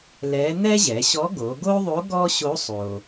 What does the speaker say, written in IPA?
l ɛ˧˥ n̪ ɛ˥ ʑ ɛ˩˧ ɕ ɔ˧˥ ɡ o˩˧ ɡ o˥ ðˤ o˧˥ ɡ ɔ˥ ɕ o˧˥ sˤ o˩

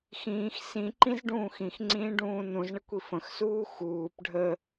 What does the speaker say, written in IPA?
x ĩː x s ĩ ǃ ĩ z ɖ ũː x ĩ x ŋ͡ǀ ĩː ɖ ũː n ũ z ɳ ə kʷ i f ə̃ x s uː x uː p ɖʱ ə

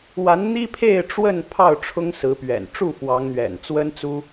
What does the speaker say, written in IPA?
w a˨˦ n n̪ i˦ pʰ e˥˨ ɪ̯ ʈ͡ʂ w ə˥˨ n pʰ ɑ˥˨ ʊ̯ ʈ͡ʂʰ ʊ˦ ŋ s ɹ̩˨˦ p ɥ ɛ̰˨˩ n ʈ͡ʂ u˥˨ f w ɑ˨˦ ŋ n̪ ɥ ɛ̰˨˩ n t͡s w ə˦ n t͡s u˦

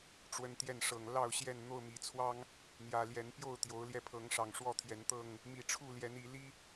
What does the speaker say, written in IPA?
ʈ͡ʂ w ə˨˦ n t̪ j ɛ˥˨ n ʂ ɤ˨˩ ŋ l ɑ˥˨ ʊ̯ ɕ j ɛ˥˨ n n̪ o˥˨ ʊ̯ m i˨˩ t͡sʰ w ɑ˦ ŋ | n̪ j ä˨˩ l j ɛ˨˦ n p j o˥˨ ʊ̯ t̪ j o˨˦ ʊ̯ l j ɛ˧ pʰ ɤ˨˦ ŋ ʂ ɑ˨˩ ŋ ʂ w ɔ˥˨ t̪ʰ j ɛ˨˦ n t̪ ɤ˥˨ ŋ | m i˨˩ ʈ͡ʂʰ u˥˨ l j ɛ˨˦ n i˨˦ l i˦

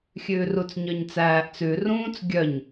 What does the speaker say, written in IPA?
xʲ ʉː r u t͡s ɲ œ ɲ t͡s æː ʔ t͡s ʉ r ũː t͡s ɡʲ œ ɲ

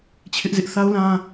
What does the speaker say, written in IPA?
t͡ɕʰ ɪ˦ ʔ z ɪ˦ ʔ θ a˦ ʊ̯ l ã˦

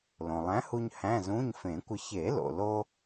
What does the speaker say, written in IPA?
l õ˩ lˠ æ̃˨˥ h u˧ ɲ h æ̃˧˥˧ z ũ˧˥˧ ɲ f ẽ˨˩˦ kʷ ə˧ ç e˨˩˦ l o̰˩ l o˧

